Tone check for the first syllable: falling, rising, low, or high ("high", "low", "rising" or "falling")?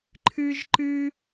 high